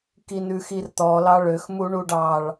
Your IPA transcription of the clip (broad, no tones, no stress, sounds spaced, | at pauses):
k i n ʉ x i r t̪ ɔ l ɑ ɭ ø x m u ɳ u ɖ ɑ ɭ